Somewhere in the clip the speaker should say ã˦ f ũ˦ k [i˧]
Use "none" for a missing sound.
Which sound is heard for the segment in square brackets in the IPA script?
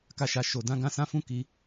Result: i˧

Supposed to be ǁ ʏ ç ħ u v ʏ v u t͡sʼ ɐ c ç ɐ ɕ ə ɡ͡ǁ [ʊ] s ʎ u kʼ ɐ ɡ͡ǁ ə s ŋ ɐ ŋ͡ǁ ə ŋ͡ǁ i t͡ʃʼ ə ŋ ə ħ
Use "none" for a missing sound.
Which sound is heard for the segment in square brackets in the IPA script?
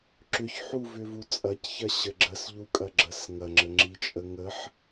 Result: ə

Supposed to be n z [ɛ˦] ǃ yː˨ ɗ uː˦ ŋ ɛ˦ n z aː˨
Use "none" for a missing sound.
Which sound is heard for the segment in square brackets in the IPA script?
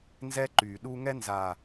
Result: ɛ˦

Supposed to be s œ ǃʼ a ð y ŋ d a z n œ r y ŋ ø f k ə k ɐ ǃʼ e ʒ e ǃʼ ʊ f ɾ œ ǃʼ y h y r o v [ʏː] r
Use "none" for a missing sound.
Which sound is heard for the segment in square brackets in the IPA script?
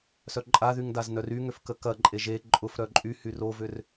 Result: ʏ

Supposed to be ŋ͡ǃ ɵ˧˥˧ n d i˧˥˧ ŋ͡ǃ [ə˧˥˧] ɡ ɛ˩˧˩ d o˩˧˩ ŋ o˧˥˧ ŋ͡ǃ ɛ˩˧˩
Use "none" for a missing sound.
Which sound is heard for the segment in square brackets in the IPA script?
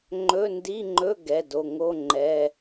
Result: ɵ˧˥˧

